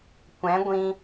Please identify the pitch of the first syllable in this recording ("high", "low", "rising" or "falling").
rising